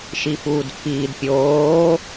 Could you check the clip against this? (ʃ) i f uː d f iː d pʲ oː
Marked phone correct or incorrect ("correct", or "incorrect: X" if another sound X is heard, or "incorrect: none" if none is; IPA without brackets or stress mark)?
correct